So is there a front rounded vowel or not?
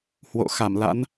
no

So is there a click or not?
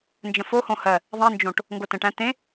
no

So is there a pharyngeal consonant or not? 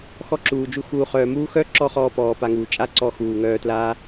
no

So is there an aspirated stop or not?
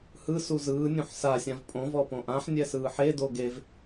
no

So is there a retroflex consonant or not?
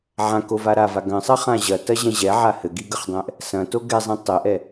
no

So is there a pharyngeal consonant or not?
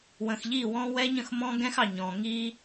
no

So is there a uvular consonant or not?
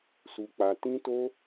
no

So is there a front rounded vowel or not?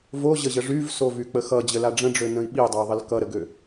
yes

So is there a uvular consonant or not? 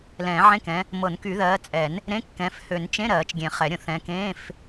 yes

